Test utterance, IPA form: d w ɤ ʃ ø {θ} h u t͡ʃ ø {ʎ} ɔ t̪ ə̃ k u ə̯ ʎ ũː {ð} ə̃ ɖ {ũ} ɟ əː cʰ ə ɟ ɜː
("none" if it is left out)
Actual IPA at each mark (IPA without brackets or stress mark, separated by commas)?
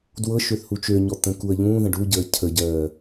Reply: θ, ɲ, ð, u